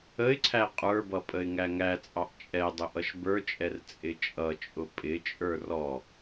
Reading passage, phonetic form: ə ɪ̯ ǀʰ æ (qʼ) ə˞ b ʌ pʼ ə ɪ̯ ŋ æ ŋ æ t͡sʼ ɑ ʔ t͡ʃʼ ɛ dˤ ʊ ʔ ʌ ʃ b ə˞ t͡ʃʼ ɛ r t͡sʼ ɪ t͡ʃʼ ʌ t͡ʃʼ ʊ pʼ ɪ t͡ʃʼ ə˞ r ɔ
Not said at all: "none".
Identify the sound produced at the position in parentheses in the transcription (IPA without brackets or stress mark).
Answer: qʼ